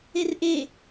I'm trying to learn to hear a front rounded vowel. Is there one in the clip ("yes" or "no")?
no